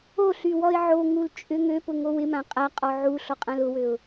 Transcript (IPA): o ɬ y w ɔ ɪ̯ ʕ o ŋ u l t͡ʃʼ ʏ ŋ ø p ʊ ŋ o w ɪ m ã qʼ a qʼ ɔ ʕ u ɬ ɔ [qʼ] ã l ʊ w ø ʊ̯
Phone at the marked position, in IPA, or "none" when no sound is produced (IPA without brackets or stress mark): qʼ